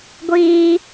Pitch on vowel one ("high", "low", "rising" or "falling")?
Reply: high